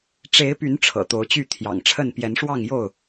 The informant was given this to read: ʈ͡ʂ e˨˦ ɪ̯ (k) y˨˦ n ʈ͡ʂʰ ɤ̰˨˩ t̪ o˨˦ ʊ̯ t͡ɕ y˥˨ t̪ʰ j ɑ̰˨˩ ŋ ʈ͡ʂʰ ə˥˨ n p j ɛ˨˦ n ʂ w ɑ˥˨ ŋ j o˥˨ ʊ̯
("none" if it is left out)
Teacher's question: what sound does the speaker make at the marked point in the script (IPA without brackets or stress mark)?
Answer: p